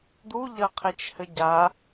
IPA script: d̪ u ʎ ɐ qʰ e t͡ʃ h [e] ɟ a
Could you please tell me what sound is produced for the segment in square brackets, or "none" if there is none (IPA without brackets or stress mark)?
ɘ